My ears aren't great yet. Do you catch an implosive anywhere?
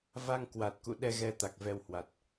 yes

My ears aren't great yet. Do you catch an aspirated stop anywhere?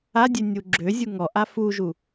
no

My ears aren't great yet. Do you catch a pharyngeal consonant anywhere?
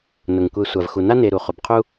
no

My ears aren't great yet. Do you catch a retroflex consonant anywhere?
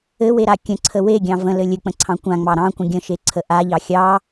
no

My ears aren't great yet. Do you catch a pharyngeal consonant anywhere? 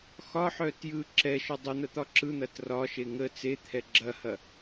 yes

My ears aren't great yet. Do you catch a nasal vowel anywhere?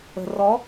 no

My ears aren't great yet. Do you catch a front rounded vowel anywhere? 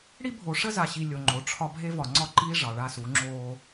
no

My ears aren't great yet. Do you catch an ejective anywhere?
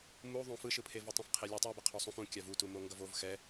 no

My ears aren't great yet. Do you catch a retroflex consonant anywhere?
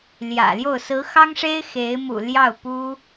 yes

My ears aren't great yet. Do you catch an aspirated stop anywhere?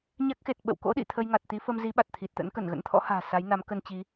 yes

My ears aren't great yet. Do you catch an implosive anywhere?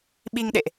yes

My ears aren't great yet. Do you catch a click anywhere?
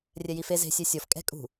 no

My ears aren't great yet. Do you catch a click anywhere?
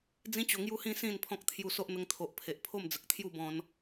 no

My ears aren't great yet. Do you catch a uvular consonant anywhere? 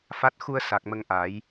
no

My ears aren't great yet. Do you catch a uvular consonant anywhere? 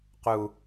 yes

